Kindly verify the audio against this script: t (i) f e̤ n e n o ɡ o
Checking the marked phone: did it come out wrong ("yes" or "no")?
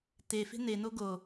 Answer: yes